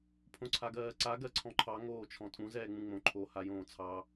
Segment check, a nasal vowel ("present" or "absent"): present